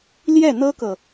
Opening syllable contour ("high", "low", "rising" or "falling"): falling